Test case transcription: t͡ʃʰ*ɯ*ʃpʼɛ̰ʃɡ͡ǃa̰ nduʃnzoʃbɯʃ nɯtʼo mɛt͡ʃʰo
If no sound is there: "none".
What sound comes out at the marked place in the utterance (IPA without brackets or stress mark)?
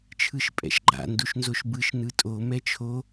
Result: ɯ